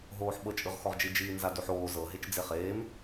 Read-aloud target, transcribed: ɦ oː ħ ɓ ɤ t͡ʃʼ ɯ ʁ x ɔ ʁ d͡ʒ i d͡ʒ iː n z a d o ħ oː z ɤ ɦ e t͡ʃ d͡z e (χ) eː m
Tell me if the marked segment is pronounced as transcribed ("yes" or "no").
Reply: yes